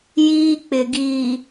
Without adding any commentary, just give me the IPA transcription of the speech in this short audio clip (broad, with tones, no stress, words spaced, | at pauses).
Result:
jiː˦k͡pɪ˨ɡiː˨